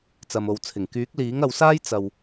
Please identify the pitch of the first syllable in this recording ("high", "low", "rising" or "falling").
low